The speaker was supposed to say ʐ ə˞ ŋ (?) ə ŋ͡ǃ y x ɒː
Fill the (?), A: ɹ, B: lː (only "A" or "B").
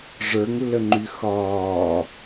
B